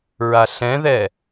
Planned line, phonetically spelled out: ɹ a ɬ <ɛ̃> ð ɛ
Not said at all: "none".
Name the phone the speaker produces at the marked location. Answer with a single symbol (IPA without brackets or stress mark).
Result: ɛ̃